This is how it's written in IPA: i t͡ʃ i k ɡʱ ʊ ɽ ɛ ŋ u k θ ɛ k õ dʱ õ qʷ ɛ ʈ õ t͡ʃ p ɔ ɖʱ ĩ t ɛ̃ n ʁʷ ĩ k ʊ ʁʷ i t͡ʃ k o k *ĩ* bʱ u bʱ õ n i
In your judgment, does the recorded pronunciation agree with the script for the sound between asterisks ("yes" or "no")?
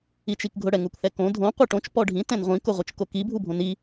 no